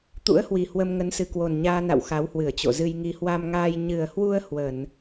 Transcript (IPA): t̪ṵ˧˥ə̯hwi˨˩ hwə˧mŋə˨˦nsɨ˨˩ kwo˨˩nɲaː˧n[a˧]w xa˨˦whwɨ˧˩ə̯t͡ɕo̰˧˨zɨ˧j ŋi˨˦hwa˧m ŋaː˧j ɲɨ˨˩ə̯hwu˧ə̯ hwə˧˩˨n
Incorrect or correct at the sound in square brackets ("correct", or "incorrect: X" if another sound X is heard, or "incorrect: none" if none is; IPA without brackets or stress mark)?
incorrect: a̰˧˨